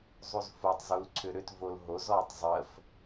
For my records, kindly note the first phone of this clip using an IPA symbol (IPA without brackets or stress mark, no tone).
zˤ